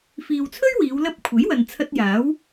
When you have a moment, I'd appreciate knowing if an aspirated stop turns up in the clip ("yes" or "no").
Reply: yes